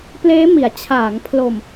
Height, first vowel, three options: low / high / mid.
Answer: mid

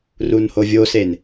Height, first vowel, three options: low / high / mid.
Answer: high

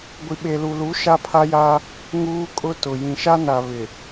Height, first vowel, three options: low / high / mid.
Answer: high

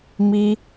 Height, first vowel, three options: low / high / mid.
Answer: high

